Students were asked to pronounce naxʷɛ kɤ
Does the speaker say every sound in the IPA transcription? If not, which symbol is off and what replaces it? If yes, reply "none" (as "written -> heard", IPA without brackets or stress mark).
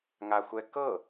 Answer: n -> ŋ